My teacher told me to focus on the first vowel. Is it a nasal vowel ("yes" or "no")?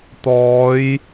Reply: no